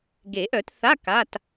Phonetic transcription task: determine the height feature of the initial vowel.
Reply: mid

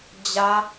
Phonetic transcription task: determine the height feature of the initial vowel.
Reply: low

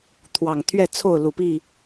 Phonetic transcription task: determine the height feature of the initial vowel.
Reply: low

